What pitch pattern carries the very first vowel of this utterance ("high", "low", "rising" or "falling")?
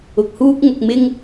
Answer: low